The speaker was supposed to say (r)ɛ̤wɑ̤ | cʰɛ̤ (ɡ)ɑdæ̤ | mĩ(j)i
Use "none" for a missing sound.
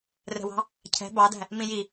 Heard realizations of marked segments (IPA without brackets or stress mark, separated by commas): r, b, j